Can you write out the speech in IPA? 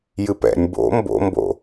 jɨpɛ̰nʲ bo̰ mbo̰mbo̰

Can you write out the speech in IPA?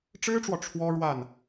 ʈ͡ʂɻ̩˥ʈ͡ʂwɔ˨ ʈ͡ʂʰwɔ˥ɻwa˥˩n

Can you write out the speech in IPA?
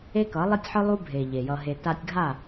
e˦kʌ˨˦lˠi˦tʲħɯ˦ lˠu˦bʱe˨ ʎe˨jʌ˧ɦe˧ ta˧tʲɡʱa˦˨

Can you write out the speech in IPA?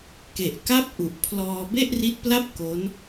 ke˨˩ʔ ka˥˩p̚ʔu˨˩ʔ pʰlɔː˧ be˥˩ʔri˦˥t̚pla˥˩p̚ ko˦˥n

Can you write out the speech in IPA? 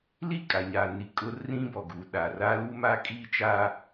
li˦˨kʼa˨ɲaː˨ ni˨ kʼʊ˦ rĩ˦bɔ˨ɡu˨ ɗa˨ra˦ lu˦ma˦kʼiː˦t͡ʃaː˦

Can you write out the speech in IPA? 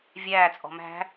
vʲæː t͡sʼɔ̤mæ̤

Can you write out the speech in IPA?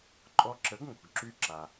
ǃʼɔ˧ǁə˩˥ɡ ŋo̤˩ɡǁy˧ǁa˩

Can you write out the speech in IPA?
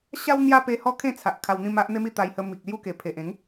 ɕa˦w n̪ja˦pe˧ hɔ˥˧kʰẽ˥˧t͡sʰa˨ʔ kʰa˧wn̪ĩ˥˧ma˦ʔ n̪e˦mi˥˧ t̪a˧jhə˧ mi˨k̚lju˥˧ke˨˩pʰe˨ʔ ẽ˨˦ŋ

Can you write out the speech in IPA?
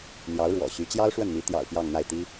n̪jɑ˧˥ʊ̯ɻwɔ̰˨˩ɕy˧˥ t͡ɕjɑ˥ʊ̯ʂwə˥˩nn̪i˧˥ t̪jɑ̰˨˩ʊ̯ pjɑ˥˧ŋn̪a˥˩ɪ̯t̪i˥

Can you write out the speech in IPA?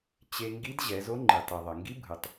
t͡ɕe˧ ŋɡi˧˥dʑɛ˩˧zo˧˥ ŋ͡ǃi˩tˤi˩ ðˤʌ˩ŋɡi˧˥ bʱɯ˩tˤ

